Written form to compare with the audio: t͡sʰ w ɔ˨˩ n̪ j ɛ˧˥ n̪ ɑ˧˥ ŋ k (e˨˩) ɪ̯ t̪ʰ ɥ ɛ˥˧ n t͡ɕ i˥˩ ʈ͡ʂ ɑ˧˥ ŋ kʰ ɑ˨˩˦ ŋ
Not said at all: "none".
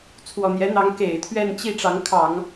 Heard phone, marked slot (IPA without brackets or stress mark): e˨˩